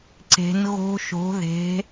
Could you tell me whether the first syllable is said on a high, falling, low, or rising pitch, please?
rising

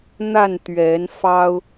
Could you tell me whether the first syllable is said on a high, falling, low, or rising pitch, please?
falling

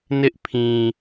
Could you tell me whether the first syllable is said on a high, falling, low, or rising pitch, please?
high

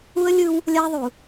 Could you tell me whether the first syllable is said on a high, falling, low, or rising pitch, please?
high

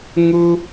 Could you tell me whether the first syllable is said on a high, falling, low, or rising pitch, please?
high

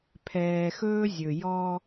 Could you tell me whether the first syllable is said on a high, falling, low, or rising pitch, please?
low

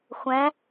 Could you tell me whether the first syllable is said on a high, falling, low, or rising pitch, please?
rising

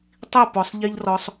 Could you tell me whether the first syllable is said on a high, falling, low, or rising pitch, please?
falling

